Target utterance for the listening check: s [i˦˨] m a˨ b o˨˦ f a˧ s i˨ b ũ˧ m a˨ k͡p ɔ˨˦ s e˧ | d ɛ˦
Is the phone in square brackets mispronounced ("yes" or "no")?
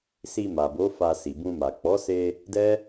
yes